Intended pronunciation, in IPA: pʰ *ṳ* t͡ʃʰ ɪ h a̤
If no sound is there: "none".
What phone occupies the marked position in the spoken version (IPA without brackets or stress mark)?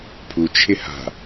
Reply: u